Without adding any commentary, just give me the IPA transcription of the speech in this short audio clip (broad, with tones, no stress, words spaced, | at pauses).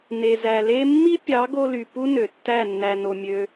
ne˨zæ˨le˦ mːi˦pʲɑ˨˦ ɡo˧ly˨ pu˦nø˨tːæ˦˨ nːæ˧no˧mʲø˦